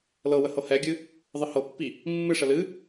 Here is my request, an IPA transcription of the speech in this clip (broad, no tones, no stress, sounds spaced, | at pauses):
l ɤ w ə h ɤ h ɛ ɡʲ ɨ | ðˤ ɨ h ɤ pː i | mː ɨ ʂ ə l ɨ